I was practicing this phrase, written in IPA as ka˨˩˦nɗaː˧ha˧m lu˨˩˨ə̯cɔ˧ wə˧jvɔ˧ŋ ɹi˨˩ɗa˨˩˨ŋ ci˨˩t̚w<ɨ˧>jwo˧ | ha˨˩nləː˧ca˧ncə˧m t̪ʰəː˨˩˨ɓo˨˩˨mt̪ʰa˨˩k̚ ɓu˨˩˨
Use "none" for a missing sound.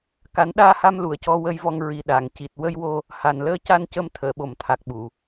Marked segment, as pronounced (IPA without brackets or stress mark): ə˧